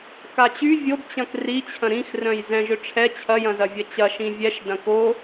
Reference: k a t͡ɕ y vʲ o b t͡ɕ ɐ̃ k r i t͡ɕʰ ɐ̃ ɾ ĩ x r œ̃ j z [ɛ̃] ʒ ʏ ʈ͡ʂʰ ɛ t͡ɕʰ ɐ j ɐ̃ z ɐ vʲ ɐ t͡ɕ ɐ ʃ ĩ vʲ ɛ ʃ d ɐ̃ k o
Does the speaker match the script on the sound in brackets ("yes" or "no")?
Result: yes